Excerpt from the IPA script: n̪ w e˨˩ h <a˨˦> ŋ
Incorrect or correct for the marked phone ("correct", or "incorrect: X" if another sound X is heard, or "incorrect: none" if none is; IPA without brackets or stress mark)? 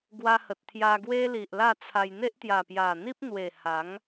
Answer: correct